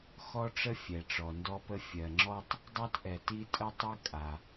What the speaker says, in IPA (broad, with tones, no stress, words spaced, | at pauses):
xɔ˥ʈ͡ʂə˥ fʲɛ˩ʈ͡ʂɔ˩ndɔ˥pə˥ fʲɜ˩ŋ͡ǁɔ˥tˤ | dˤa˥tʔɛ˩ ti˥ tʼə˥tˤɛ˥ kʼa˩